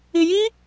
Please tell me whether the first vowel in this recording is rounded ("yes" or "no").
no